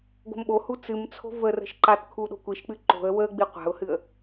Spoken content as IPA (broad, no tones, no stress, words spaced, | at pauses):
ɡo̤mɓohu t͡sɨmt͡sʰo̤ və rə̤ʃǃatkʰu ɗo̤kʷiʃk͡pɨ ǃo̤ə̯ wəɡ͡bi qʷa̤ʊ̯hɨə̯